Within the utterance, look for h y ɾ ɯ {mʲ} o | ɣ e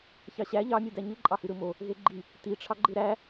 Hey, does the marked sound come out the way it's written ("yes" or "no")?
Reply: no